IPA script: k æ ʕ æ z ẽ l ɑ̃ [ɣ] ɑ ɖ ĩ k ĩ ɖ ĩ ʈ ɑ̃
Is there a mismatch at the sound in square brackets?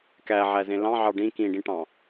yes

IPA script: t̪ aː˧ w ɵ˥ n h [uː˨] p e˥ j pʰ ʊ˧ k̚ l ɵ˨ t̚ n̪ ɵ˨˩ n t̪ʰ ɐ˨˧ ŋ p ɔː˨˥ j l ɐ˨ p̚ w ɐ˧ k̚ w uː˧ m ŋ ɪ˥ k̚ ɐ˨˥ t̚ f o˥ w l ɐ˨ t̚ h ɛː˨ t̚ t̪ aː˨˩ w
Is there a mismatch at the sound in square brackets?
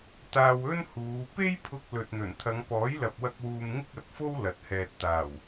yes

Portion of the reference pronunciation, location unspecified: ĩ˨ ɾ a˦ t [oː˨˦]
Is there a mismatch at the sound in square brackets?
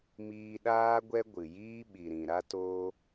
yes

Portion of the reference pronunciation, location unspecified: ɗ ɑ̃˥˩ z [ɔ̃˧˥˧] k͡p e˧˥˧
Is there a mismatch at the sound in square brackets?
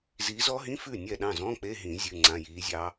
no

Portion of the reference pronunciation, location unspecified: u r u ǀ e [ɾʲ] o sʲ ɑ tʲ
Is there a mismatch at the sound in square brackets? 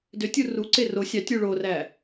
yes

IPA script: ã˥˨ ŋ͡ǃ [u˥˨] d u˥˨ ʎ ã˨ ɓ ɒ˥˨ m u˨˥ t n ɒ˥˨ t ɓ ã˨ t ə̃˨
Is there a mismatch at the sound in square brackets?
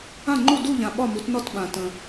no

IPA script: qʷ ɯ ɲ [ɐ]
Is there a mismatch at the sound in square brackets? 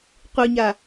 yes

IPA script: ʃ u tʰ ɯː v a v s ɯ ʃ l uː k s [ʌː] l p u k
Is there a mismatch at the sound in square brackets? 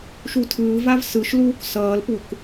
no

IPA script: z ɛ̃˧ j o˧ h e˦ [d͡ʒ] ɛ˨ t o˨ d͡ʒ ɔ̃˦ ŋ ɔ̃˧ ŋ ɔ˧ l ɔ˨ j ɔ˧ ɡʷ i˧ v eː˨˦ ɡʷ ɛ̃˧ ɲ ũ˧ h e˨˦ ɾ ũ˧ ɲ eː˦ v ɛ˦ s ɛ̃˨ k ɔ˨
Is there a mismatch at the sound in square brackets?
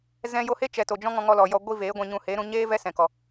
yes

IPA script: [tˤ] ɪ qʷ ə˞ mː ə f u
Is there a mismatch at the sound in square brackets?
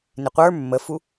yes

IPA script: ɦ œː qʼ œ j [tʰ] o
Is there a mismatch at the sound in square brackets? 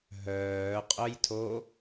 no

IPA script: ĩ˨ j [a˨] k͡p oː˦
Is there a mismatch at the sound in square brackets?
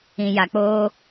no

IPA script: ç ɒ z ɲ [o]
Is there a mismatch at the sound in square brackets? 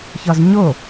no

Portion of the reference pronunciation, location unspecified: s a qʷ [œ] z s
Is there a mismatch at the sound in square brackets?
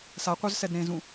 no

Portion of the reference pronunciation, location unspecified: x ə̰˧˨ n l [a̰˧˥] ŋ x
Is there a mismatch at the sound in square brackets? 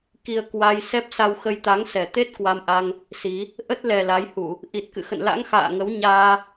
no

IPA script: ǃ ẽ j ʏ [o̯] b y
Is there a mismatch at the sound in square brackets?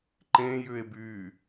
yes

